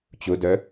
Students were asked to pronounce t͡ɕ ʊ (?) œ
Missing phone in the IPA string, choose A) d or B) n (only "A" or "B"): A